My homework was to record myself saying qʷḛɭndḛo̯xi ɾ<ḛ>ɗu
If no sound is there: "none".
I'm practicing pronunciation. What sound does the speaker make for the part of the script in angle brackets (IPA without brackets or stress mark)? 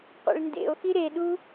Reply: e